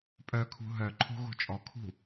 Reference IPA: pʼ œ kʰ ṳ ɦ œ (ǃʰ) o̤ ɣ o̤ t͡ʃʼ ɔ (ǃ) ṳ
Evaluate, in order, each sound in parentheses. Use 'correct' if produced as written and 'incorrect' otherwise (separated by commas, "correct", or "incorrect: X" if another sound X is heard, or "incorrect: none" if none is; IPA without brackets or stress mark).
correct, incorrect: kʰ